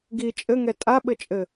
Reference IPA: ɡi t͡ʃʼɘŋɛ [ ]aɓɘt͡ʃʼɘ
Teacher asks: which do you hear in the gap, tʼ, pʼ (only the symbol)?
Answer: tʼ